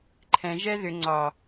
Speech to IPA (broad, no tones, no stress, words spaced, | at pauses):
ǃʰɛ̃ʒɛ ðʏ ŋ͡ǀɒ